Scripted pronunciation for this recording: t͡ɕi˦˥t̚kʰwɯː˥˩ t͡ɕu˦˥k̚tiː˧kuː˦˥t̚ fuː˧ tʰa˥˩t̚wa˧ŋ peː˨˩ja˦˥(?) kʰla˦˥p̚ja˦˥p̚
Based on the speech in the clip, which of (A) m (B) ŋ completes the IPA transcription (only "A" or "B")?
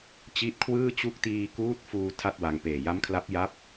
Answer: A